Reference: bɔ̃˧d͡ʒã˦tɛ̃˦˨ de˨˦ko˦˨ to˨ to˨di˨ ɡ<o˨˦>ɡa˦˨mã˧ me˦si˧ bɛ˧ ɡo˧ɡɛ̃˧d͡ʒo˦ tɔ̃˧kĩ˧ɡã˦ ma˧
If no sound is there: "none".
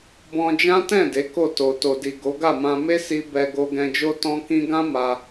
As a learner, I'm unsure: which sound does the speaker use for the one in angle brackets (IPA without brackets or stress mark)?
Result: o˨˦